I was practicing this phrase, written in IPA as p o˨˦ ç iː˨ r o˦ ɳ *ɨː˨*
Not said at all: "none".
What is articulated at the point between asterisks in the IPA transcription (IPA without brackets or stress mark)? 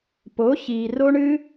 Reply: ɨː˦